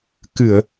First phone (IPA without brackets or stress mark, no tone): k